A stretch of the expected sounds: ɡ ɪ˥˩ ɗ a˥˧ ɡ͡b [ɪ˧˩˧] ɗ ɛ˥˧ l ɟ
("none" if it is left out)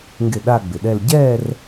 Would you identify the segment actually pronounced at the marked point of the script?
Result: ɪ˨˩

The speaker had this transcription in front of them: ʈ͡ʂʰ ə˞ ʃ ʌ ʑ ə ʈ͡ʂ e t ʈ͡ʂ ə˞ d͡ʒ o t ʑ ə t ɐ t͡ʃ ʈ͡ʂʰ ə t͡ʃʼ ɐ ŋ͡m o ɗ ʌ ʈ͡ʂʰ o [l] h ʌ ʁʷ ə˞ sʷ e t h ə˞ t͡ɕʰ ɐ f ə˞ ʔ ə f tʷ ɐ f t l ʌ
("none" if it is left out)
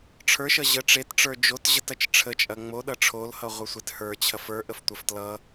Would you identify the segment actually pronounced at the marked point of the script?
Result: l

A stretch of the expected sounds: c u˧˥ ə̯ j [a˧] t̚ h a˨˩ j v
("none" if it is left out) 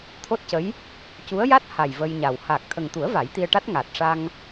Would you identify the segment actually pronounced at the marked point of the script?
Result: a˦˥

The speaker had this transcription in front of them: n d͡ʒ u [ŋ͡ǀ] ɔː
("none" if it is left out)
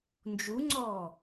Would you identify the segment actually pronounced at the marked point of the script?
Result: ŋ͡ǀ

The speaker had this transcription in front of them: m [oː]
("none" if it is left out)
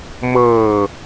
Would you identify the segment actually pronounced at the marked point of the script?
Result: ɤː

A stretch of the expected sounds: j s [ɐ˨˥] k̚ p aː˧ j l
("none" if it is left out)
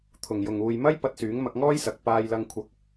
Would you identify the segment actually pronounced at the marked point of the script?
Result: ɐ˨˥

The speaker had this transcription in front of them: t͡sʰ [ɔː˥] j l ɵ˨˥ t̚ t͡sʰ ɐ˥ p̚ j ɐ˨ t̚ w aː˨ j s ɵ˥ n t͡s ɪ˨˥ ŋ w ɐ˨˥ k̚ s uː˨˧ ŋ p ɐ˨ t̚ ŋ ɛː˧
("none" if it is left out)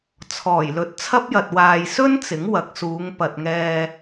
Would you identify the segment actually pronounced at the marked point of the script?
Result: ɔː˨˩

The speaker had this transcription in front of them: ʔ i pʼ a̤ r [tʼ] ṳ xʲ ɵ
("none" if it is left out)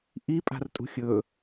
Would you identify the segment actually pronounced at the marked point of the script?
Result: tʼ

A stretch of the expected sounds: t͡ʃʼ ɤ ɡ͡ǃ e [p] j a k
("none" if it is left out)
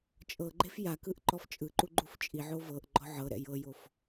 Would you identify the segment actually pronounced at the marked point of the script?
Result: f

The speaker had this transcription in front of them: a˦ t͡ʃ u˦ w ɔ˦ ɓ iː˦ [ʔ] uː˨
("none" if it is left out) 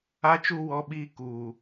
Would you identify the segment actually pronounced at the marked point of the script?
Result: k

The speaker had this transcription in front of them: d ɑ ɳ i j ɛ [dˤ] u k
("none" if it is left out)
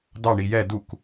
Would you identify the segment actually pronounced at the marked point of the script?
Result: d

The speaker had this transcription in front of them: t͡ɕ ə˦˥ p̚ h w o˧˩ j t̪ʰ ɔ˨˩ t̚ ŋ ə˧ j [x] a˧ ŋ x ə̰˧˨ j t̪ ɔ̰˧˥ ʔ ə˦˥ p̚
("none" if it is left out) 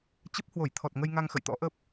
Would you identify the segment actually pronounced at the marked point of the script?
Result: ŋ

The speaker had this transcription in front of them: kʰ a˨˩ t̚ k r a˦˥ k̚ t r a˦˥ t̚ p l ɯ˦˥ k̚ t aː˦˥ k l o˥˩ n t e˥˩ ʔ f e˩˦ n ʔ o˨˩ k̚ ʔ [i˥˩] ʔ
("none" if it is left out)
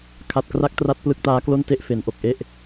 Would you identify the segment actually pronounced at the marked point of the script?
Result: e˥˩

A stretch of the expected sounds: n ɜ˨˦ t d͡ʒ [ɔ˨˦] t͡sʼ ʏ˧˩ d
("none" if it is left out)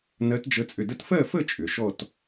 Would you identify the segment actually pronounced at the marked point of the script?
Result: ə˨˦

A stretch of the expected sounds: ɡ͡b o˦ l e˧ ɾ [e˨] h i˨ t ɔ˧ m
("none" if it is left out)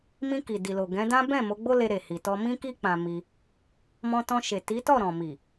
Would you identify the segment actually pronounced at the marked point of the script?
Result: e˨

